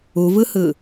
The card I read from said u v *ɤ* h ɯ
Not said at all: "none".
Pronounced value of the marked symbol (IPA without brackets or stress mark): ɯ